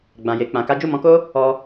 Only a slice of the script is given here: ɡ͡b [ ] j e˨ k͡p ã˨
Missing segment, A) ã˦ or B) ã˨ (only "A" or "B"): B